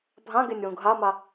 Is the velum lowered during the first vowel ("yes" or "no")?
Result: yes